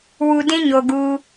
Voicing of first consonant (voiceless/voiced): voiced